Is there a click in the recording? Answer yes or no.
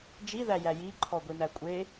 yes